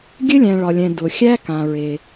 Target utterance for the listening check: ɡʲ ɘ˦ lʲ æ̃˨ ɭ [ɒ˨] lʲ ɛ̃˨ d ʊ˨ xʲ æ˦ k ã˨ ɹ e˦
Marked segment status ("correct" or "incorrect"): correct